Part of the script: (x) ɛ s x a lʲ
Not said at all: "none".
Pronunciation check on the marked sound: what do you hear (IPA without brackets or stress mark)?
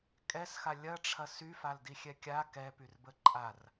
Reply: kʼ